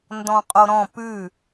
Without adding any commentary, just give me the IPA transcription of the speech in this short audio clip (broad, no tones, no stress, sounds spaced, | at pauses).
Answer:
n d ɔ̃ qʼ o ɾ ɔ̃ p ʉ